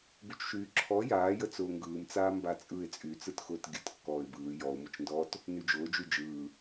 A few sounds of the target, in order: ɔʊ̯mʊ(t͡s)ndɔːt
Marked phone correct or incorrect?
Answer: incorrect